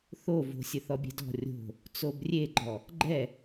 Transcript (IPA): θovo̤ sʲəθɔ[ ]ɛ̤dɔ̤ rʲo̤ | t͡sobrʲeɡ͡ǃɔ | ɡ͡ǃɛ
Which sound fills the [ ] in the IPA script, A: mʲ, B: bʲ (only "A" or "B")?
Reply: B